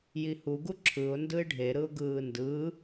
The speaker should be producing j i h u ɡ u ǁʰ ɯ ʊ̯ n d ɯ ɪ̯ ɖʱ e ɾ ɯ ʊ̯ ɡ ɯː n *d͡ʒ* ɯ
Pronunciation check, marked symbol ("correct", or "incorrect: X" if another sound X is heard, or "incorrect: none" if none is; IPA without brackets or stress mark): incorrect: d